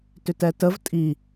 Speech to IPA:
t ʏ t ɛ t ə v tʼ i

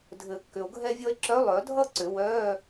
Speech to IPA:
dʱ ɘ˨˩˦ kː ʏ˨ o̯ ɡʱ ɛ˥ vʲ ɔ˥ e̯ ǁ œ˧˥ lˠ œ˨˩˦ dʱ ʌ˥ ǀ ʏ˨˩˦ w œː˧˥˧

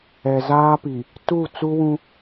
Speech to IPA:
ɛ˨ z aː˦ p i˨ | t u˦˨ t͡s u˦ w ũ˦

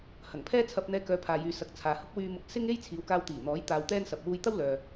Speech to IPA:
h ɐ˨˩ ŋ pʰ ɛː˥ t͡sʰ ɐ˧ p̚ n̪ ɛː˧ k œː˨˧ pʰ aː˨ j yː˨ s ɐ˨˥ k̚ t͡sʰ aː˨ h ʊ˥ k̚ w yː˧ m ʊ˧ k̚ s ɪ˥ ŋ e˥ j t͡sʰ iː˨˧ w k aː˧ w t̪ iː˨˩ n̪ ɔː˨˥ j t̪ aː˧ w t̪ ɛː˥ n s ɐ˧ p̚ w uː˧ j t̪ ɐ˥ w l œː˨

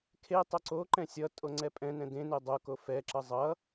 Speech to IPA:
kʰ e tˤ o ǀ o ǃ ɛ̃ sʲ ʌ tʼ o ŋ͡ǀ ɛ pʼ ɛ̃ n ɛ̃ d ẽ n e dˤ o k o f ɛ ǁ ʌ zˤ ʌ

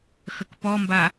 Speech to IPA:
x ə k p ɔ m b a

